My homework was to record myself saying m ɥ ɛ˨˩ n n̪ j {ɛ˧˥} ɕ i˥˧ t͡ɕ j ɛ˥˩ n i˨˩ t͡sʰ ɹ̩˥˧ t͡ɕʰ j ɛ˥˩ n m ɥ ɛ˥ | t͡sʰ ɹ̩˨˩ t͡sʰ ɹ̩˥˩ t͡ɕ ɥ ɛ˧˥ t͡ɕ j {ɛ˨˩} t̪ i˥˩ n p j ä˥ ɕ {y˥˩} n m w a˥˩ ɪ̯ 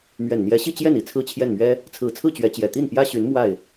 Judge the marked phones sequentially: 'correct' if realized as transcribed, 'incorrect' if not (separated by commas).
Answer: correct, correct, incorrect